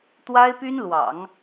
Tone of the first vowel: high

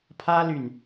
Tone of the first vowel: high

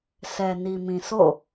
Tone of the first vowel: low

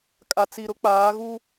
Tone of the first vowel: low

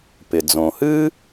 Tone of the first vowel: low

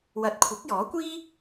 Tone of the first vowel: rising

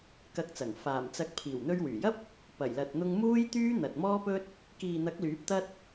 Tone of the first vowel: rising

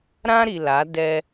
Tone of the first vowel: high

